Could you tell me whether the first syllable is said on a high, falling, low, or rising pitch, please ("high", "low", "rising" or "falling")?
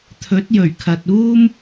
rising